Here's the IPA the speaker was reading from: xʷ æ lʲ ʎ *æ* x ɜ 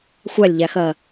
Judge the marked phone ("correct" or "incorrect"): correct